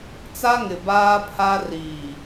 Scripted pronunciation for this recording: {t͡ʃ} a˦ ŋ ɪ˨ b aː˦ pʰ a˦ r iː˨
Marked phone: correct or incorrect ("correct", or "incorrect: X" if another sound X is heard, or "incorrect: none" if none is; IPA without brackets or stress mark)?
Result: incorrect: t͡s